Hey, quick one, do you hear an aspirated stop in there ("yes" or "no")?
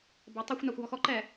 no